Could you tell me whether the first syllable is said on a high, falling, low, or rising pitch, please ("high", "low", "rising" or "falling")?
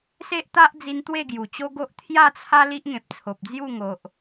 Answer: high